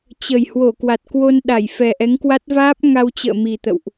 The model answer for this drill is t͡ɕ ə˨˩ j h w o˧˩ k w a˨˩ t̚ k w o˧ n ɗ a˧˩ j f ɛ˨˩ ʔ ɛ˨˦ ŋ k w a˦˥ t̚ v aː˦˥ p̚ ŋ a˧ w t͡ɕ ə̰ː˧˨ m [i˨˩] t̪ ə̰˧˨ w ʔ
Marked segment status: correct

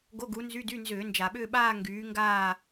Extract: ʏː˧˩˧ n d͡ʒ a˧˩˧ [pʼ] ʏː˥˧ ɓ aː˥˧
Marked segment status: incorrect: ɓ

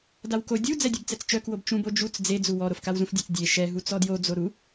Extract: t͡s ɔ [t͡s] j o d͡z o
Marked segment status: incorrect: d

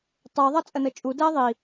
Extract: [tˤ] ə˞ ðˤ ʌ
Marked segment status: correct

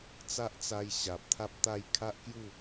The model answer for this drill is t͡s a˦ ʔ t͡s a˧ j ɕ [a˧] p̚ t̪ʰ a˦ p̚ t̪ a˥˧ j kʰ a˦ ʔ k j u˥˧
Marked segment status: incorrect: a˨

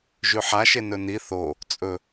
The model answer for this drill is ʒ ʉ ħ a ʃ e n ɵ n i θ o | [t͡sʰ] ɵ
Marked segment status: incorrect: t͡sʼ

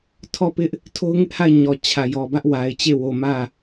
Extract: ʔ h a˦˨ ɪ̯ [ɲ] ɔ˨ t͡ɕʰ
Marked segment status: correct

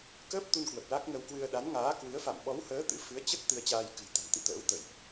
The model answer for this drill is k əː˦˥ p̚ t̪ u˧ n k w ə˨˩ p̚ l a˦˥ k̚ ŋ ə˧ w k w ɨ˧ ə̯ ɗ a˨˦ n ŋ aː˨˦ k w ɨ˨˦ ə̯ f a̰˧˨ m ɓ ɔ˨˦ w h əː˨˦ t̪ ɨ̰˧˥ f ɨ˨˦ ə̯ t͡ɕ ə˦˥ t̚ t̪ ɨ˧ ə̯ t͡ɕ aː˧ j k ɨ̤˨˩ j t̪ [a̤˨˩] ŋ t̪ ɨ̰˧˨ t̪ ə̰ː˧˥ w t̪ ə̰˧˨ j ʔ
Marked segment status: correct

